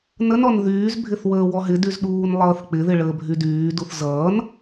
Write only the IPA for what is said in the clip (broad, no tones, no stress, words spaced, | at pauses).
nənɔn ðyːzbʱɪθ wəːwɔɦɪdyz ɗuːnlˠʌːθk͡pɪðɪ ɭəːbʱydyːduθ zʌːn